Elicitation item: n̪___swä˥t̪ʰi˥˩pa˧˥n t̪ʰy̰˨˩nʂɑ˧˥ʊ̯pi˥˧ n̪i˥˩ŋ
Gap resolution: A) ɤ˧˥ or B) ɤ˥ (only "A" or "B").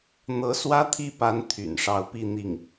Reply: A